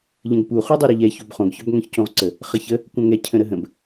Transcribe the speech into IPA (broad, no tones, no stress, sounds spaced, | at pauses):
ʎ ə̃ ɡ p u χ u dˤ u ɾ ə ʎ ɛ ç o b χ õ ɡ ç œ b ŋ œ̃ ç c õ ʁ ǀ ə | χ ə ç ə | kʷ œ̃ ŋ ɛ cʰ ə̃ ɾ ə ɦ ə̃ b